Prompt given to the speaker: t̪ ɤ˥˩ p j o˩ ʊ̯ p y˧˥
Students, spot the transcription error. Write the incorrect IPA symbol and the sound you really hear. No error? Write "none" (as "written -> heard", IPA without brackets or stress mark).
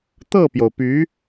none